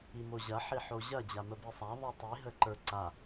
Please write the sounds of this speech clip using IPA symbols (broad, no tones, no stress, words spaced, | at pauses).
imoʑɐ ħiħoʑɐ d͡ʑaməbisˤa ðˤitˤi ɦəǃə˞ǀa